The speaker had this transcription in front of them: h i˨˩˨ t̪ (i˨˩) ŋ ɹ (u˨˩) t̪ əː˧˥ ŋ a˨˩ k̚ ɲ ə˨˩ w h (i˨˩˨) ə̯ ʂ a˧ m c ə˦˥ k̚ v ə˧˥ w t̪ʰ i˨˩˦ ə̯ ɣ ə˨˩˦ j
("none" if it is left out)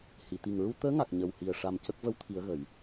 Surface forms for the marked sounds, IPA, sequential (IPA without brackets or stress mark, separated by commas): i˨˩, u˧, i˨˩